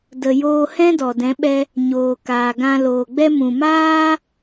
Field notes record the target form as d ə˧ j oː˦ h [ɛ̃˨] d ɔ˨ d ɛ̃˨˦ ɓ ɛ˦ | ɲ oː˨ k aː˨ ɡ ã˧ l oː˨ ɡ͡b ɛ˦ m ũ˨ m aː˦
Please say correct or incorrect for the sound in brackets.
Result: incorrect: ɛ̃˦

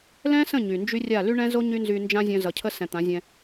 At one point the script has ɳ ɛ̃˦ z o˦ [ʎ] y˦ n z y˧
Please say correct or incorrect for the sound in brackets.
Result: incorrect: ɲ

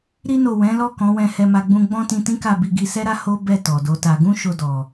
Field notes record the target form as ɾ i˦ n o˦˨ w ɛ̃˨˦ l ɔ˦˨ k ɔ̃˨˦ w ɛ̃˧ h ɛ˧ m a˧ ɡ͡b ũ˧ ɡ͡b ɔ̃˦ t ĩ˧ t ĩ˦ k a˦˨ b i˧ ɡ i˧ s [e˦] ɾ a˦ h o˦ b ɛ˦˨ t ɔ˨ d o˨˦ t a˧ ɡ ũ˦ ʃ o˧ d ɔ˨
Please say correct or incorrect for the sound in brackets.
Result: incorrect: ɛ˦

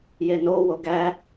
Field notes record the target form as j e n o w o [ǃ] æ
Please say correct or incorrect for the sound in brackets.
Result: incorrect: ɡ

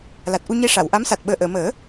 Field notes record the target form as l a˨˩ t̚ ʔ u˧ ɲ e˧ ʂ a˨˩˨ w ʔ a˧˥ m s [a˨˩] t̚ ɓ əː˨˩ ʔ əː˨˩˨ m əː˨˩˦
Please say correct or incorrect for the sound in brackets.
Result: correct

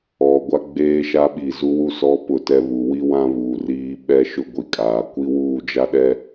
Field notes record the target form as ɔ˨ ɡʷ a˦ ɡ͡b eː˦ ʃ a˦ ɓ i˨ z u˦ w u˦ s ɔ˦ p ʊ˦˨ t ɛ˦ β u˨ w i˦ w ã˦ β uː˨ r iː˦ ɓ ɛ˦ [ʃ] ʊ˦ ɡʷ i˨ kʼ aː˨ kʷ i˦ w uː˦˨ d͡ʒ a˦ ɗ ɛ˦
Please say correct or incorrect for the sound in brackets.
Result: correct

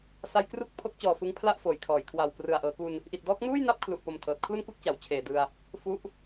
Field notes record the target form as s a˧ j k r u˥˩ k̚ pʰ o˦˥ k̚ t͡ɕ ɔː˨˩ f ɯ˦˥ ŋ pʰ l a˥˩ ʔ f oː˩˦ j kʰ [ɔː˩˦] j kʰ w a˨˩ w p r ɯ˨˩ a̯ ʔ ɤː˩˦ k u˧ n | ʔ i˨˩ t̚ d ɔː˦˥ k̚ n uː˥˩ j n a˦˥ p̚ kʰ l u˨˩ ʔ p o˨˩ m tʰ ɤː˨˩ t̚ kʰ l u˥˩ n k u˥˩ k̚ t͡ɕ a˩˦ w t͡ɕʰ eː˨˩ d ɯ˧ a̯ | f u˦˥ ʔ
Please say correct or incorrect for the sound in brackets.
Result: correct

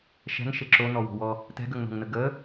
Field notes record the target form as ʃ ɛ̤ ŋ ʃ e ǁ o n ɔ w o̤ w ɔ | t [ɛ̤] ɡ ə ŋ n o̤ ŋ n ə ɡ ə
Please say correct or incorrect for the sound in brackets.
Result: correct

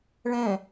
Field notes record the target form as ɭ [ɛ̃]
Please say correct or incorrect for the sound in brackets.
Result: correct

